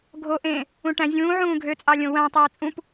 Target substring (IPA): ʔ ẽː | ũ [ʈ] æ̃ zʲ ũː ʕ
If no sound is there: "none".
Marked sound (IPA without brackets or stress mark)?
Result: ʈ